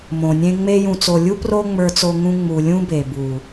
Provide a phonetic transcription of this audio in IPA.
m õ˨ nʲ ẽ˦ ŋ͡m e˧ j ũ˨ t͡s o˨ lʲ u˦ p r o˦ ŋ͡m ə˞˧ t͡s o˧ ŋ ũ˧ ŋ͡m u˨ lʲ ũ˦ b e˨ b u˨

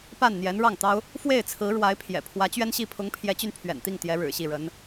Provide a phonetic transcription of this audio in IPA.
p a˥˩ n n̪ j ɛ˧˥ n ɻ ɑ˥˩ ŋ t̪ ɑ˥ ʊ̯ | f w e˥˩ ɪ̯ t͡sʰ ɹ̩˧˥ ɻ w a˧˥ ɪ̯ pʰ j ɛ̰˨˩ pʰ w ä˧˥ t͡ɕ ɥ ɛ˥ n ɕ i˥˩ pʰ ʊ˧˥ ŋ pʰ j ɛ˧˥ t͡ɕ y˧ n pʰ ɥ ɛ̰˨˩ n t̪ i˥˩ ŋ t̪ j ɛ˧˥ ɻ ɻ̩˨˩ ɕ i˥˩ ɻ ə˧˥ n

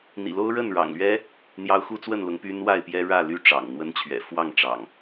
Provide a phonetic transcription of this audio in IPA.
n̪ ḭ˨˩ l o˦ ʊ̯ ɻ ə˥˨ n ɻ ɑ̰˨˩ ŋ l ɥ ɛ˦ | n̪ j ɑ˦ ʊ̯ x u˦ t͡s w ə˥˨ n l ʊ˨˦ ŋ p y˦ n w a˥˨ ɪ̯ p j ɛ˦ ɻ ä˥˨ l y˥˨ ʈ͡ʂ ɑ̰˨˩ ŋ n̪ w ə˦ n t͡ɕʰ ɥ ɛ̰˨˩ f w ɑ˥˨ ŋ ʈ͡ʂ ɑ̰˨˩ ŋ

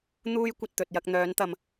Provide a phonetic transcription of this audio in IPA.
n̪ uː˥ j kʷ ɐ˧ t̚ t̪ ɵ˨ t̚ j ɐ˧ k̚ n̪ œː˨˧ n t̪ ɐ˨ m

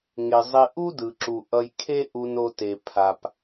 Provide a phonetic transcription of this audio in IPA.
ŋ e˩ zˤ i˨ ʔ u˦ d ɯ˩ ǁ u˩ ʔ ʌ˨ j kʰ e˦ ʔ u˨ n o˨ t e˩ pʰ a˨ p

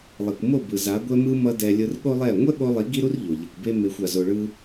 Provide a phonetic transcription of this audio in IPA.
lˠ i˨ kʷ m o˦˨ b ɯ˨ z a˨˦ ɡʷ ɛ˧ m ɯ˧ m ʌ˦ d ɛ˧ lʲ ɯ˧ r ɠ o˦ lˠ ɛ˦˨ ŋʷ ɛ˦ ɠ o˧ lˠ i˨˦ ɡ i˦ ɾ u˦ r ʎ o˨ ʎ i˨ kʷ b e˦ m e˧ xʷ a˧ z o˧ ɭ ɯ˦

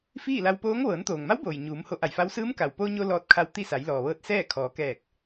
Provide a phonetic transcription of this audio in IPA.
f iː˥˨ l a˧ w p oː˧˥ ŋ ʋ ɤː˩˧ n t̪ oː˩ ŋ m a˧˥ w b oː˩ j ɲ uː˩˧ m h o˧ ʔ a˧˩ j f a˧˥ w s ɯː˧˥ m k a˩ w p o˧ ɲ o˧ l ɔː˧ t̚ kʰ a˧ w t̪ i˥˨ s a˩˧ j l ɔː˩ ʋ ɤː˧ t̚ s ɛː˥˨ kʰ ɔː˩˧ k ɛː˧˩ k̚

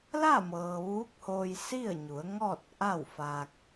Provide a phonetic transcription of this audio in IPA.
l a˥˨ m ɤː˩ ʋ uː˧˥ k̚ h oː˧ j s i˥˨ ə̯ ɲ u˩˧ ə̯ ŋ ɔː˥˨ t̚ ʔ a˥˨ w f a˧ k̚

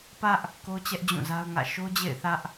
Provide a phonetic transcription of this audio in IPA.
p ä˦ ʔ | k o˦ t͡ɕ ɛ˦ ʔ d͡ʑ ũ˦˨ z a˦ ʊ̯ ŋ ä̰˦˨ ʃ o˦ d͡ʑ ḛ˦˨ ɪ̯ θ ä˦ ʔ

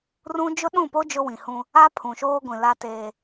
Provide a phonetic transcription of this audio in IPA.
r ũ˦ d͡ʒ ʊ˦ ɗ ũ˦˨ p o˦ d͡ʒ ʊ˦ w ĩ˨ h ũ˦ | a˦ pʰ ũ˨ ʃ oː˦ ɡʷ ĩ˨ l a˦ t eː˦

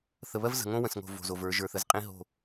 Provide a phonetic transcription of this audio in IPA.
θ ə˨ β ɜ˦ v z ə̤˨ ŋ õ˦ w ə̃˨ s ŋ o̤˨ v o̤˨ z o˨ v ə˞˨˦ ʒ ə˞˨ θ ə˨ z qʼ ĩ˦ ɦ o̤˦˨

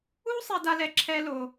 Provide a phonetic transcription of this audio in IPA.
u˥ sˤ e˥ d a˥ l ɛ˥ ǁʰ ɛ˥ l o˧

